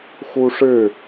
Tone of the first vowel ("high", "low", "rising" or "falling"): high